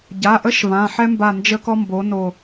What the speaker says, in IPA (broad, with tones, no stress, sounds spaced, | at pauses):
ɟ a˩˧˩ ʔ ə˥ ʃ v ã˩˧˩ ħ ɛ˥ m b a˦˨ n d͡ʒ ə˥ k ɔ˥ m b o˨˥ n o˦˨